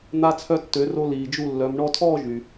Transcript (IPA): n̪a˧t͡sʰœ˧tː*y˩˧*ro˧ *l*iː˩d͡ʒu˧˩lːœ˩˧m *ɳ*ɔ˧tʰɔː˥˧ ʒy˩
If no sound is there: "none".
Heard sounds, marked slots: ø˩˧, l, ɳ

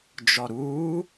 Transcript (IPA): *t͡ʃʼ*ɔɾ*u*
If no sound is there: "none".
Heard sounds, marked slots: d͡ʒ, uː

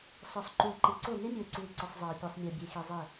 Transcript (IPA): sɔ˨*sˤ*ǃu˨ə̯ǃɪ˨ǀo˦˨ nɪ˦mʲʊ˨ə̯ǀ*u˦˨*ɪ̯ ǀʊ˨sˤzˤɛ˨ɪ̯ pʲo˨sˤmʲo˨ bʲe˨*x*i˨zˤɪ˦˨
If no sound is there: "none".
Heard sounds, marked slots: sˤ, u˨, x

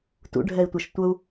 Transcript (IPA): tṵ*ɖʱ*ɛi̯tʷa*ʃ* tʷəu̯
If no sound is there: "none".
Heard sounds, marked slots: ɖʱ, ʃ

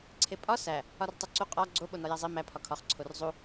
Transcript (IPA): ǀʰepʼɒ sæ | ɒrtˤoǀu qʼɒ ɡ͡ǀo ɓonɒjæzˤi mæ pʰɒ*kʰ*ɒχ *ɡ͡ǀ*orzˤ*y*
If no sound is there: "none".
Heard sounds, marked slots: kʰ, ǀʰ, u

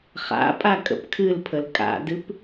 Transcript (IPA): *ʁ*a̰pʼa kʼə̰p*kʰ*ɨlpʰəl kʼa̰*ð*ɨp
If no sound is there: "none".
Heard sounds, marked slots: χ, kʰ, d

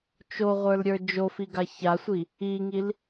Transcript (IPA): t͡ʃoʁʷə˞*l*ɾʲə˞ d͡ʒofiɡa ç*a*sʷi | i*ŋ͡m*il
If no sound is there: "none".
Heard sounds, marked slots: l, a, ŋ

